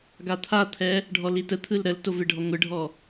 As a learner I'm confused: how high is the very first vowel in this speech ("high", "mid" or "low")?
low